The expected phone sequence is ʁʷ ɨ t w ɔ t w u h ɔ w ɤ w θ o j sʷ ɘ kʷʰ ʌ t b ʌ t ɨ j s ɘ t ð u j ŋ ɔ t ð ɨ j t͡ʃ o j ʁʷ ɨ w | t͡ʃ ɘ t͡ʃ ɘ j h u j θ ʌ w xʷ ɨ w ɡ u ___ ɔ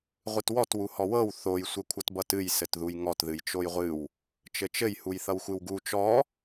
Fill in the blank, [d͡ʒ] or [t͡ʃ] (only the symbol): t͡ʃ